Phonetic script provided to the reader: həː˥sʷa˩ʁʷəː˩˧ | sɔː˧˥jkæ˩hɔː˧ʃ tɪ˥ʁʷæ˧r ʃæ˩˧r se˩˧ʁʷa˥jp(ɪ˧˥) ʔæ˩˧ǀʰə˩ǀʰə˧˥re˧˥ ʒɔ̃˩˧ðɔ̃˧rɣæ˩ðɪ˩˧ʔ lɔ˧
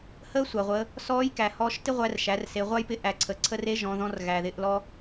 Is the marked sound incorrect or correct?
correct